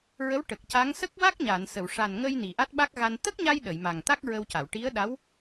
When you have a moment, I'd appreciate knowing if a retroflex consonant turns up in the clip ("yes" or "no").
yes